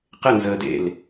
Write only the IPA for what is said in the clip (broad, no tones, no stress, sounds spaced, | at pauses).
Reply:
q ɪ n z əː d ḛ l